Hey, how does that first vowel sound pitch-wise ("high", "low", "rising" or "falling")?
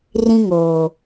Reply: high